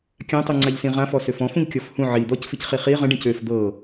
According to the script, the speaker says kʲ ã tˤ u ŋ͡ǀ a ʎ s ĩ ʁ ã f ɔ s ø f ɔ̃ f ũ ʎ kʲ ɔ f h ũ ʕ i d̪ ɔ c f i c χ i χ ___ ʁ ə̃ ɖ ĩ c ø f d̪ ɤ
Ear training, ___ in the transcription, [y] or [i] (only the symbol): i